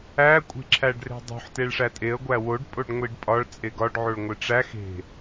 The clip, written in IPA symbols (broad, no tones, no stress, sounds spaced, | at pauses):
æ kʷʼ e̤ ǁʰ æ ɖ r e̤ dˤ ṳ ħ t e ɭ ʂ æ tʼ e ə̯ ɡʷ æ w o ɖ pʼ o ɖ ŋʷ i ɖ pʼ ɒ ɭ t͡sʼ e ɡ ɒ ɖ ʕ o ɭ ŋʷ e ʈ͡ʂ æ x e̤